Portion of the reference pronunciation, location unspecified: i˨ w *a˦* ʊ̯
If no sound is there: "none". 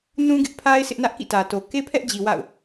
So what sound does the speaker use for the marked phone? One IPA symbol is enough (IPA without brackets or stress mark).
a̰˦˨